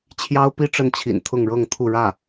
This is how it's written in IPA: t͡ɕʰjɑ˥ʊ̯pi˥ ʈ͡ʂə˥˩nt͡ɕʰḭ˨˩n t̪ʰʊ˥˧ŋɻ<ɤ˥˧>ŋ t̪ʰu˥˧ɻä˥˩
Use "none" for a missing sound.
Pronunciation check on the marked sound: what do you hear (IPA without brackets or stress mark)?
ɤ˥˧